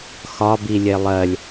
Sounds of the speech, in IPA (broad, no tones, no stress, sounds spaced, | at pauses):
x ɒ b i lʲ e lˠ ɜ lʲ